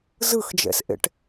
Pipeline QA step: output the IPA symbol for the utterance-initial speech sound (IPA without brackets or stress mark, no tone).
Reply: z